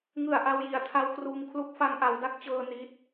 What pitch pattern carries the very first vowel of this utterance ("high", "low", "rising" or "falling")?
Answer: low